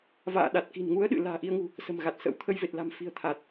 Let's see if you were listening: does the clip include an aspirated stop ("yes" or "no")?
yes